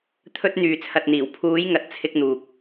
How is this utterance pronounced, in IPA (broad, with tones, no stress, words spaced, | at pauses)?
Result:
t̪ʰɵ˧t̚ n̪yː˨t͡sʰɐ˨t̚n̪iː˨˩w pʰuː˨˧jŋɐ˨t̚ t͡sʰɪ˧k̚n̪uː˨k̚